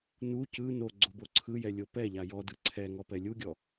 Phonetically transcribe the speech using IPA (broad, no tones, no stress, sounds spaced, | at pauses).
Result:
n u c ɯ n o ɡ͡ǀ o b o ǀʰ ɯ j ɛ lʲ o p ɛ ʎ a j ɔ d ɯ ǀʰ ɛ ŋ ɔ p ɛ lʲ u ɡʲ ɔ